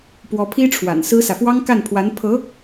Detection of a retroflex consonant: present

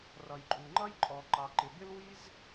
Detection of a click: present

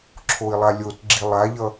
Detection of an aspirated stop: present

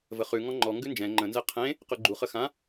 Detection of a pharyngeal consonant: absent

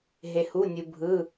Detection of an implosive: absent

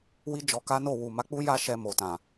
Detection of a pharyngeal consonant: absent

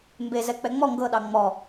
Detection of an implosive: present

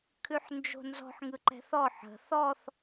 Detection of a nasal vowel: absent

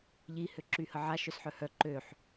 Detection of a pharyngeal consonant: present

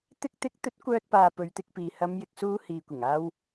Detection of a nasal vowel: absent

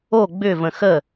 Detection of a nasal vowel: present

